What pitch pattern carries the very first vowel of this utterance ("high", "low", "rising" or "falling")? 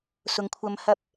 low